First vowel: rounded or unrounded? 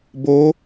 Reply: rounded